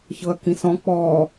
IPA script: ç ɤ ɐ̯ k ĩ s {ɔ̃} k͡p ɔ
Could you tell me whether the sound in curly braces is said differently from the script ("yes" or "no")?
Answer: no